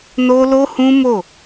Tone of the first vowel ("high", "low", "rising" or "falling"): high